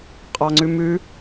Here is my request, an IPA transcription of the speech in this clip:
qʼ ɑ ŋ͡ǀ ʉ m ʉ

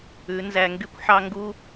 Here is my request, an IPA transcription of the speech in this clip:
ʉ˨˦ n z æ˧ ŋ ɡ y˦ kʷ ħ ɑ˦ ŋ ɡ u˦

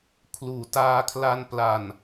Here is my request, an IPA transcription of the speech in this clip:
kʰ l uː˩˦ t aː˧ kʰ l a˧ n p l a˨˩ n

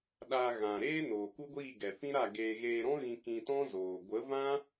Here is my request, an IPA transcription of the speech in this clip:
ɗ aː˧ ɣ ã˨ ɾ eː˦ n oː˨ k u˦ ɡʷ iː˦˨ ɡ ɛ˨ f ĩ˦ ɾ a˦˨ ɡ eː˧ ɣ eː˧ ɾ ɔ̃˦ ɣ ĩ˧ k ĩ˧ t ɔ̃˦ z oː˨ ɡʷ ə˨˦ v ã˦

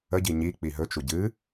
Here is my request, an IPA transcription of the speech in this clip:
ə ɟ i ɲ i k͡p i ɦ ɵ t͡ʃ u ɟ ɨ

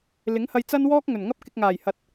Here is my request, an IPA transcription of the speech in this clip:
l ɪ˨˥ ŋ h ɐ˧ j t͡s ɐ˥ n w ɔː˥ k̚ ŋ ɵ˨˩ n ŋ ɐ˥ p̚ k ɪ˧ k̚ ŋ aː˨˩ j h ɐ˨˥ t̚

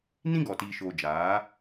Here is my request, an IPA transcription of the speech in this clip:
n ĩ˦ ɡ ɔ˨ t iː˨ ʃ oː˨ d͡ʒ aː˨˦

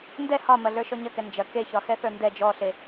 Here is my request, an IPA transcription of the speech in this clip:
n d ɛ h ɒ m ɐ ɮ ə˞ ʃ ɔ ɲ ɐ k ɛ n d͡ʒ ɐ k e ç ɒ x ɛ θ ə˞ n d ɛ d͡ʒ ɔ ɬ e

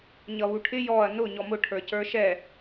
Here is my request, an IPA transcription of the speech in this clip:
ɲ ʌ β u ʈʰ ɪ j ɔ ɐ̯ n ʊ ɲ ɔ m ʊ ʈʰ ə˞ c ə˞ ʃ ɛ

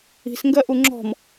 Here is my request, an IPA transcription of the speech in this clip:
i̤ s ŋ ɡ ɜ ʔ u ŋ͡ǁ ɔ̤ m

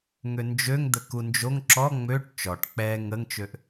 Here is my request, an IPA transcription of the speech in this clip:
ŋ ø n d͡ʒ ø ŋ d̪ ə k u n d͡ʒ o ŋ ǁ ɔ ŋ͡m ø ʈ t͡ʃ ɔ ʈ k͡p ɛ ŋ ə ŋ t͡ʃ ø ʔ

